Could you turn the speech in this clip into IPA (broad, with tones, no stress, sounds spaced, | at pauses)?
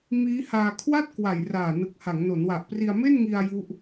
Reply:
m iː˦˥ h aː˧ kʰ w a˥˩ t̚ k w a˨˩ j r aː˨˩ n ɯ˨˩ k̚ h a˩˦ ŋ n o˩˦ n w a˨˩ ʔ p r i˧ a̯ m e˥˩ n ŋ i˧ a̯ j u˦˥ ʔ